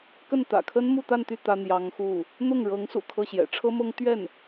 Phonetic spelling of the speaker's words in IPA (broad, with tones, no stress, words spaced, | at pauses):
kə˥˩nt̪ä̰˨˩kʰə˥n mu˥˧t̪a˥˧nt̪y˥˩ t̪ä˥n̪jɑ˧˥ŋxu˥˩ | n̪ʊ˥˩ŋɻɤ˧˥ŋsṵ˨˩ kʰɤ˥˩ɕjɛ̰˨˩ ʈ͡ʂʰɤ˥mɤ˥ŋ t̪ɥɛ˥˩n